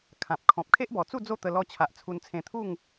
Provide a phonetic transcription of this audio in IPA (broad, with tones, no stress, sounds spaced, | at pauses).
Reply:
kʰ ã˨ p̚ kʰ ɔ̃˨ p̚ kʰ e˦ ʔ b ɔ˨˩ t͡s u˥˧ d͡z o˥˧ t̪ ə˧ l ɔ˧ t͡ɕʰ a˨ ʔ t͡sʰ u˧ n t͡sʰ ẽ˧ t̪ʰ u˥˧ ŋ